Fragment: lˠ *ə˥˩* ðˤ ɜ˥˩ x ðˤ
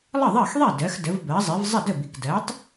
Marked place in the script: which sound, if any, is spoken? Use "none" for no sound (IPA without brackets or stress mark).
ə˥˩